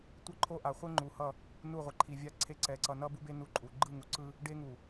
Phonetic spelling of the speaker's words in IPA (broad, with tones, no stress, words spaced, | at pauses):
tʷʌ˦ǃʰo˦ʔa˨ χʷe˦ŋ͡ǃu˨hʌ˦˨ | nu˦˨ʁʷe˨ǃʰi˨ vʲa˦ǀʰe˦ ǀɛ˨ ǀʌ˨nʌ˦bu˦be˦ nu˦ǃʼu˨ ɡ͡ǃɯ˦˨ŋu˨ǀɯ˦ | ɖe˦ŋu˨